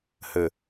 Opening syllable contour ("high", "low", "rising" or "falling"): low